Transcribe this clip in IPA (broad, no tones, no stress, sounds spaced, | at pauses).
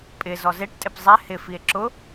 pʼ ɪ z ɔ z e ʈ tʼ ɪ p zˤ ɛ h ɪ f i e̯ ǁ ʊ